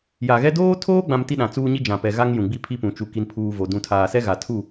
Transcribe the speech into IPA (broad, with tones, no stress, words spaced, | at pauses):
ja˨ɣɛ˦ doː˦tʰoː˦ɡ͡bã˨m ti˦ɗã˨t͡suː˦ɲi˦ d͡ʒã˨pɛ˨ɣa˦ŋ jũ˨ɡ͡bi˦pʰi˦pũ˨ t͡ʃu˨ki˨npʰuː˨ vo˨ dũ˨ tʰaː˨ sɛ˦ɣa˨tʰu˦˨